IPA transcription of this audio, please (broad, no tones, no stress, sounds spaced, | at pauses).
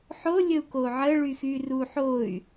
ħ o lʲ ə u̯ k o ʕ ə ɭ y x y r u ħ o y̯